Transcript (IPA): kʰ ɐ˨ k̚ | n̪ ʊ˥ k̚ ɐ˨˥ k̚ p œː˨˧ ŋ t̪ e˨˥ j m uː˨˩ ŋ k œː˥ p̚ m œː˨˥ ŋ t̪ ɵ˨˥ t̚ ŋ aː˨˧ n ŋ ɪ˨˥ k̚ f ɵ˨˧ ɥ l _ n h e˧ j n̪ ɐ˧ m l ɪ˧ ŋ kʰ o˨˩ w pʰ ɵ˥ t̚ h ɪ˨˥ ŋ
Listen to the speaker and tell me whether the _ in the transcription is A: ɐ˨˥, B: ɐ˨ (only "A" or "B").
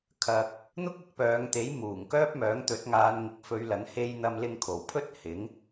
A